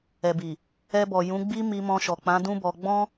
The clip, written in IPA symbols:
ɛ˨ b i˨ | ɛ˧ b ɔ˨ j ũ˨˦ ɡ͡b i˦ m i˧ m ɔ̃˧ ʃ ɔ˨ k͡p ã˨˦ d ũ˦ b ɔ˧ ɡ͡b ɔ̃˦

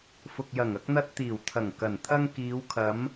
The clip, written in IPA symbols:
f ʊ˨ k̚ j ɐ˨˩ ŋ ɐ˧ k̚ n̪ ɐ˧ t̚ t̪ iː˨˩ w t̪ʰ ɐ˨˩ ŋ k ɐ˨˩ n t̪ʰ ɐ˧ ŋ k iː˨˧ w kʰ ɐ˨˧ m

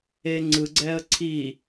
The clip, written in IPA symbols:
e ŋ͡ǀ ɯ ɡ͡ǀ ɛ ə̯ ǀʰ i

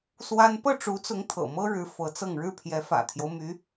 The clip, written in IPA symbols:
s w a˥ n p ɤ˥˩ ʈ͡ʂ u˧˥ t͡s ʊ˧˥ ŋ t̪ʰ ɤ̰˨˩ m ɤ˥ ɻ ɻ̩˧˥ f ɤ˧˥ t͡s ɤ˥˧ ŋ ɻ ɻ̩˥˩ pʰ j ɛ˧˥ f ä̰˨˩ t̪ʰ j o˦ ʊ̯ m y˧˥

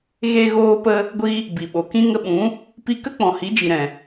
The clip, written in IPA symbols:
ɣ e˧ ɣ oː˧ p ə˧ | ɡʷ i˧ | b i˨ ɓ o˨ k ĩ˦ ŋ ə˧ ɓ ũ˨˦ | p i˧ k ə˦ k͡p ɔ̃˨ h i˨˦ d͡ʒ i˨ ɾ ɛ̃˨

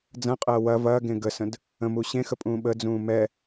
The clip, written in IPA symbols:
d͡z ɐ̃ qʼ ɐː w ɐ v ɐː ɡ ẽ ɡ ə s ə̃ d | ə̃ m uː ɕ ẽ x ə pʼ ũː ɓ ə d͡z ũː m ɛ

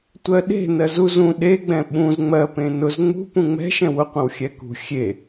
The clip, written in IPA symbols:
tʷ ɜ ɗ e̤ n ɜ z u z ũ ɗ e ɡ͡b ɛ̃ ɓ ũ z ŋ͡m ɜ p ẽ n ʊ z ŋ͡m ṳ p ũ ŋ͡m ɛ̤ ʃ ɛ̃ w ʊ qʷ ə̃ w xʲ ɛ k ṳ xʲ e

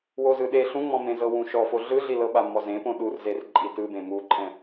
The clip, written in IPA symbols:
w o z ɯ ɗ e ɬ ũ ŋ͡m ɔ̃ m ẽ z ɤ w ũ ʃ ɔ f o ɮ ɯ ɮ i l ɤ ɓ a m ɔ z ẽ p õ ɗ u r z e r ǃʼ i t ɯ b ẽ m u ǃʼ ɛ̃

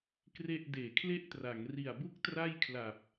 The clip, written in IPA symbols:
k r e˥˩ ʔ d eː˩˦ kʰ l e˥˩ ʔ t r a˩˦ ŋ r i˨˩ a̯ b u˥˩ k̚ t r a˥˩ j kʰ l a˨˩ p̚

